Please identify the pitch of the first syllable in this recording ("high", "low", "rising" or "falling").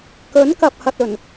rising